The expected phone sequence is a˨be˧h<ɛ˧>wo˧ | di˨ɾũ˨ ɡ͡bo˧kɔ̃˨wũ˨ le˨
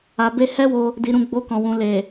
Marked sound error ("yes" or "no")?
yes